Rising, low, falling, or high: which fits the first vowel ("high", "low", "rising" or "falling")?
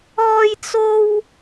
high